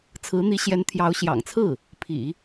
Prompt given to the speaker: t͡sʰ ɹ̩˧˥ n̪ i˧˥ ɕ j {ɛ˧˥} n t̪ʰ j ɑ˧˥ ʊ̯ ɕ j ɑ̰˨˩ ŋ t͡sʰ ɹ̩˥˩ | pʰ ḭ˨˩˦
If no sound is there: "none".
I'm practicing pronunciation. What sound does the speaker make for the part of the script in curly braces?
ɛ˧˥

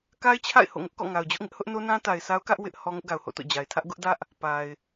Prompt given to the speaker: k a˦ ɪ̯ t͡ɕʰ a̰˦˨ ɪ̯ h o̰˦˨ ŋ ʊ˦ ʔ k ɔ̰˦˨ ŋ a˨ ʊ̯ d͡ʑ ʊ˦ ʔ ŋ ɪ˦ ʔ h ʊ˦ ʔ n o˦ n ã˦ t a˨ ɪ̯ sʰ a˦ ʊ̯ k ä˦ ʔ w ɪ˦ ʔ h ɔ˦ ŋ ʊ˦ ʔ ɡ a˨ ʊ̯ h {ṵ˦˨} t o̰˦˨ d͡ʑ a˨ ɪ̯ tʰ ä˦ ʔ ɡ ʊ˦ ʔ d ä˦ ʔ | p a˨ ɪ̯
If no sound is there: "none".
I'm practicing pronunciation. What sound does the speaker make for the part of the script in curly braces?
o̰˦˨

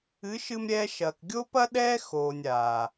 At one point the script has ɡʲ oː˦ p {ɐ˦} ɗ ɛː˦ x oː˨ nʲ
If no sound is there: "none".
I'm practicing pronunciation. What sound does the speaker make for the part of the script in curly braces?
ɐ˦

